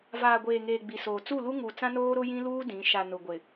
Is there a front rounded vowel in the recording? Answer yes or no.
no